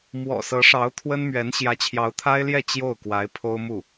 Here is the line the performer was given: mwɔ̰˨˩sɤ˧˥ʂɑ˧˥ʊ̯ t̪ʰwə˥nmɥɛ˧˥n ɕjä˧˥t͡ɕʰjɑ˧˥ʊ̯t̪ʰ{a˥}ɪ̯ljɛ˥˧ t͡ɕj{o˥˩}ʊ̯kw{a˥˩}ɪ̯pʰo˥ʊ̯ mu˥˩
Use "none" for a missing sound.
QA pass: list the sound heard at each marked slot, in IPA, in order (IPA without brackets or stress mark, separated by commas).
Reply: a˥, o˥˩, a˧˥